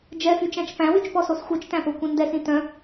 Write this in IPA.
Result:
d͡ʒ ɛ f y t͡ʃ æ̃ t͡ʃ p æ̃ w y t͡ʃ p ɔ s o s xʷ œ t͡ʃ t æ̃ p o kʷ ĩ n d ɛ s ĩ t œ̃

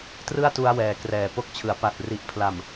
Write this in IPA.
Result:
t r ɯ˥˩ a̯ t u˧ a̯ w ɛː˩˦ k r ɛː˨˩ p o˦˥ k̚ t͡ɕʰ ɯ˩˦ a̯ p a˨˩ t̚ r i˨˩ ʔ pʰ l a˨˩ m

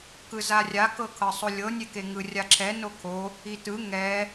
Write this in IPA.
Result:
k ɯ z a rʲ a k ɤ kʰ ɤ sˤ o lʲ ɤ nʲ e k e ŋ ɯ rʲ a ǁʰ ɛ n o kʰ o | i t ɯ ŋ ɛ

